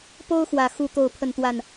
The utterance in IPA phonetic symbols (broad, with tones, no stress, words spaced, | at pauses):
po˦ʊ̯xwä˨˩ xu˥˨ t̪o˥˨ʊ̯pʰə˥˨nt̪wa˥˨n